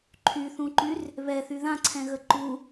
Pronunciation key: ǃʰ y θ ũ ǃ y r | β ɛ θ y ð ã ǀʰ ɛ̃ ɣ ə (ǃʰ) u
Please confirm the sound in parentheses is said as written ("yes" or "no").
no